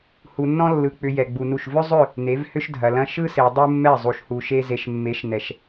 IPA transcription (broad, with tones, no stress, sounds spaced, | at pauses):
h u˨ nː ɔ̃˦ lː ɯ˨ k͡p ʏ˨ j ɛ˨ ɡ͡b u˨ n u˦˨ ʃ v ʏ˦ zˤ ʏ˦˨ | n e˨˦ v h ʏ˦ ʃ dʱ ɐ˨ l ɐ̃˦ ʃ ɯ˦ s e˨ dˤ u˦ mː ɛ˦˨ zˤ u˨ ʃ h u˨ ʃ e˦ z e˨ ʃ mː e˨˦ ʃ n ɛ˨ ʃ